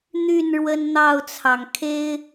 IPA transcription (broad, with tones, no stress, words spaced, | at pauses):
n̪y˥˨nɻwə˦nn̪ɑ˥˨ʊ̯t͡sʰɑ˩ŋ kʰe˦ɪ̯